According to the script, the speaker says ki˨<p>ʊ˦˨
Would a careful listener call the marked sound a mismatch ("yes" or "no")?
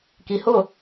yes